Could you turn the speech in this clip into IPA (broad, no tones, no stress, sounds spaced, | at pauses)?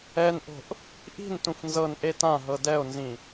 ɛ n ʔ o̤ ʔ | ʔ i̤ n t ũ f n z ɤ n ʔ e t ã ɦ ɤ d ɛ o̯ n z ĩ